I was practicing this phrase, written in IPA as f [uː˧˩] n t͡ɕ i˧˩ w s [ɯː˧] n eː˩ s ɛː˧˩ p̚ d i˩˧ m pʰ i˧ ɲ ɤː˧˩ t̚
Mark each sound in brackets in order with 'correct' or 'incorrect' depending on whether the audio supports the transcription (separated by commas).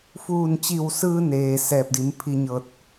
correct, correct